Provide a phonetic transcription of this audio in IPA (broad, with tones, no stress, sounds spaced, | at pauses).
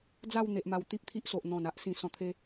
d͡z a˥˧ w n̪ e˨ ʔ m a˨˩ w t̪ i˦ p̚ t̪ʰ i˦ ʔ s o˨ ʔ n̪ ɔ̃˨˩ n a˦ ʔ s ĩ˨˩ s ɔ̃˨˩ t̪ʰ e˧